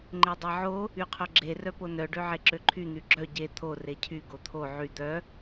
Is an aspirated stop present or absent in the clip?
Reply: present